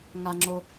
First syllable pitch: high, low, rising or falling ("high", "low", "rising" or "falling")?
high